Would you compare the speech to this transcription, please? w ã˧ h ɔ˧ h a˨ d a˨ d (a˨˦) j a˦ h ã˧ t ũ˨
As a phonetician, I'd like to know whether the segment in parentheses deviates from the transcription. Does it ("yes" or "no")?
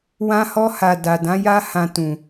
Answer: yes